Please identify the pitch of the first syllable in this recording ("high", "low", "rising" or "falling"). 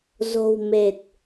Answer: low